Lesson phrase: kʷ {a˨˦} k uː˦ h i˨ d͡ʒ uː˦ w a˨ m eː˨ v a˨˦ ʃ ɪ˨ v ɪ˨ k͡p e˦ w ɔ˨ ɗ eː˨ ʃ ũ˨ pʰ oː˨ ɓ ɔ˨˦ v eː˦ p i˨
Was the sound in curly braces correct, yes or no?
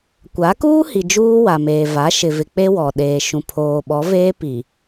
yes